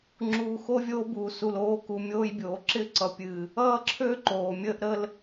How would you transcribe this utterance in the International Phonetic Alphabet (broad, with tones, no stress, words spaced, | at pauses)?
ŋ͡ǁuː˨xo˦ vʲoː˦buː˨su˨l oː˨˦ku˨ mʲoː˦jbʲoː˨ ǁɪ˦ ǀʌ˨pʲɨː˨ | ʌː˦ǁʰø˦ ǃoː˨mʲəː˦ʔɾəː˦l